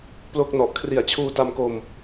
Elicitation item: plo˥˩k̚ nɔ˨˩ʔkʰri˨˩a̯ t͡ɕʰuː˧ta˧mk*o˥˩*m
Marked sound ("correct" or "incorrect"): incorrect